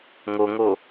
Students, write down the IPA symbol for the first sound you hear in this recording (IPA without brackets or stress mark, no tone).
ŋ